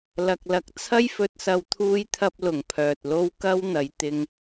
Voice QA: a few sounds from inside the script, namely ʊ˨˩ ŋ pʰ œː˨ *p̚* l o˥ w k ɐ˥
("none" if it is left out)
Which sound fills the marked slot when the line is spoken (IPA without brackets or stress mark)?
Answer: t̚